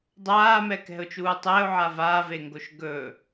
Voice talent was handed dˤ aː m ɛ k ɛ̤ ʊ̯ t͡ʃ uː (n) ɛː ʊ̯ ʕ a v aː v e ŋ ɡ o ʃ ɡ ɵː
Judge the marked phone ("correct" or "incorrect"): incorrect